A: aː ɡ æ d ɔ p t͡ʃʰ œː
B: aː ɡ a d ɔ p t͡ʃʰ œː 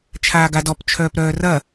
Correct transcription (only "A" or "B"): B